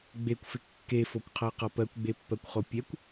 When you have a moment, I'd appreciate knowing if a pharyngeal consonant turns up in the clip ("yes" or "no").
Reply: no